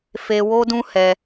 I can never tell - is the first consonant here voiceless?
yes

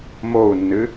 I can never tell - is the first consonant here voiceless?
no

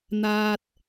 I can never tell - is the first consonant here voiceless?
no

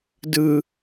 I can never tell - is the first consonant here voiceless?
no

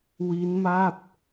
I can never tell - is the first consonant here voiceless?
no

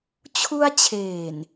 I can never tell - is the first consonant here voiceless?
yes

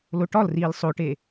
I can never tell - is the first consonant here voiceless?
no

